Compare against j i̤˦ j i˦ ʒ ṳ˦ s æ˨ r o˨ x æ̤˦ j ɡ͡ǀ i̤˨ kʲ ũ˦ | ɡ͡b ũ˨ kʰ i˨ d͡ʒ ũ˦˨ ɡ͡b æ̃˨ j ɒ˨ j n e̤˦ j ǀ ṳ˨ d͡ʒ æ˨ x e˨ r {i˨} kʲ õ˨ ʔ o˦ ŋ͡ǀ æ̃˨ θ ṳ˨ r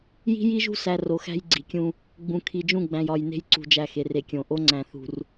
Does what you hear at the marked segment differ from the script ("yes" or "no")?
yes